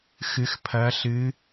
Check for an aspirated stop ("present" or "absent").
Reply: present